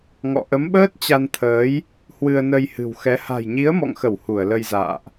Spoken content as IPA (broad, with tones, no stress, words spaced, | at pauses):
ŋɔ̰˧˨ʔə˨˦mɓəː˦˥t̚ t͡ɕa˧nt̪ʰəː˨˦j | hwɨ˧ə̯nə˧jhɨ̤˨˩wxɛ˨˦ ha̤˨˩jɲi˨˦ə̯mɔ̰˧˨ŋxə˧˩w hu˧˩ə̯lə˧jza̰ː˧˨ʔ